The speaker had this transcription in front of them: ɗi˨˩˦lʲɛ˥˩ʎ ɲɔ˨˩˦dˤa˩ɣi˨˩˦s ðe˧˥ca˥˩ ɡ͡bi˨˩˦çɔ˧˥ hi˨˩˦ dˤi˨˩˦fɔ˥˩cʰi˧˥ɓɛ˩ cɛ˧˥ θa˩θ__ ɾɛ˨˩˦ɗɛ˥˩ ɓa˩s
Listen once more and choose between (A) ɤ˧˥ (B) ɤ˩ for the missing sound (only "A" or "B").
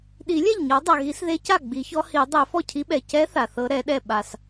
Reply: A